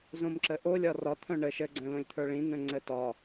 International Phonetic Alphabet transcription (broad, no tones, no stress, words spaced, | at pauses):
zõmǁəʔo lʲɒrɒt̪ʰœ̃ ɳə ʃəɡ͡ǀœ̃lõlʲt̪ʰə˞ ɭĩn̪œ̃ ŋ͡ǀətɒ